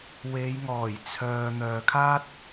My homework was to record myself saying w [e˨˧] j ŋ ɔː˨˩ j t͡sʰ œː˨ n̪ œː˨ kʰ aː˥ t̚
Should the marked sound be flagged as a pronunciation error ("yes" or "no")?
no